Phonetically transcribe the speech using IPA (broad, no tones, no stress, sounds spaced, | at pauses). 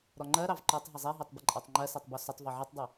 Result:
ɾ ɔ ŋ͡ǃ ɜ ɾ ɑ v ǃ ɔ tˤ ɦ ɪ zˤ ɛ ɦ ɛ tˤ b ɪ ǃʼ ɑ tˤ ŋ͡ǃ ɜ s ɛ tˤ b ɔ s ʊ tˤ v ɔ ʕ ɛ tˤ dˤ ɜ